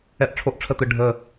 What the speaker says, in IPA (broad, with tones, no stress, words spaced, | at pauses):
ɛ˥˨ʔʈ͡ʂʰo˥ʔʈ͡ʂʰə˥˨t̪ɯ˧˩ ɖʱə˧˩